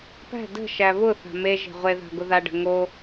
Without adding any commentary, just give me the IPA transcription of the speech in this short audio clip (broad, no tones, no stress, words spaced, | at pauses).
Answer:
pæ̤ də̤ ʃæβʊθa̤ me ʒe̤ʁʷeða̤ ɡʊðaɖə̤ ŋo